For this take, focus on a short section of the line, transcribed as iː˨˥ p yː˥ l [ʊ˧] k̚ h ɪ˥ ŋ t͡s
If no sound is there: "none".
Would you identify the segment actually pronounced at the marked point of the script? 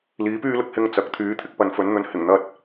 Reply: ʊ˨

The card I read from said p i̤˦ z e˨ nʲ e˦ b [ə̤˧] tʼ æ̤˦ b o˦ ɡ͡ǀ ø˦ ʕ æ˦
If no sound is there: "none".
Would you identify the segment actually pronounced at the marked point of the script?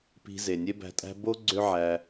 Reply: æ̤˧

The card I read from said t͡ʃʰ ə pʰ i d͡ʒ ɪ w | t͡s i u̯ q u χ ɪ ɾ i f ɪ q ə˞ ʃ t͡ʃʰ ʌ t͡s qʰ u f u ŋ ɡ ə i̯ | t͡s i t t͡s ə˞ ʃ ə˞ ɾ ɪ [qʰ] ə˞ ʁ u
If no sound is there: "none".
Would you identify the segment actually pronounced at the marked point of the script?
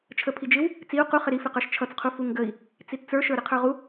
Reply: qʰ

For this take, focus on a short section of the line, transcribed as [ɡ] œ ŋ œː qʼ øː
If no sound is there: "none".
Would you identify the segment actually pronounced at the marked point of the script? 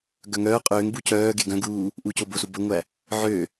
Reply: ɡ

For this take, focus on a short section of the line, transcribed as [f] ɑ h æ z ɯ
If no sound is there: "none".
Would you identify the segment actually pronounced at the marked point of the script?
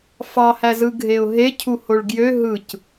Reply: f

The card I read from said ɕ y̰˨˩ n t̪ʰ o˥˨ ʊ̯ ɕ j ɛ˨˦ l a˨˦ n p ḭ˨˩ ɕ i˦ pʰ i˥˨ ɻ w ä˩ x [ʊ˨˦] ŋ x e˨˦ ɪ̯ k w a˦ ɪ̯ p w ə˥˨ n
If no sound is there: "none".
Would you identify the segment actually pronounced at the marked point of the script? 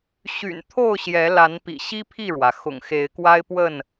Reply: ʊ̰˨˩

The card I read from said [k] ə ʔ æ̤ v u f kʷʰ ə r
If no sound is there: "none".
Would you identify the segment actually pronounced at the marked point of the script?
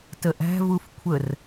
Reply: t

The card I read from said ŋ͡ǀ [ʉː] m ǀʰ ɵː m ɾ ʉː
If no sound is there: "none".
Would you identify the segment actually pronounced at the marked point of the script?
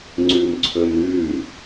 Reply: ʉː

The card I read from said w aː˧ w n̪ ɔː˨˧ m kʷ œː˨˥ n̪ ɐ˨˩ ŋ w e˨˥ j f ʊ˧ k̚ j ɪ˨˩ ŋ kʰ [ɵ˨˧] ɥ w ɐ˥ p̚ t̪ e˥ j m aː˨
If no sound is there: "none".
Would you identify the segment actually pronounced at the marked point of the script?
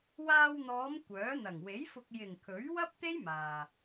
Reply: ɵ˨˥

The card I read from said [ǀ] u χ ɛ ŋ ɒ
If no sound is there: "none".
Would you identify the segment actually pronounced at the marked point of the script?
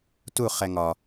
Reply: t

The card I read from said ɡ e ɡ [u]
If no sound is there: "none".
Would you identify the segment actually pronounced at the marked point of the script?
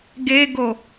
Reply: o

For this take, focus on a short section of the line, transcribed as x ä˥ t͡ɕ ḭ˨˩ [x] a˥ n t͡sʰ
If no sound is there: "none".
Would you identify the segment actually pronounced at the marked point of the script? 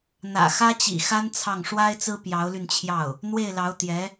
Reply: x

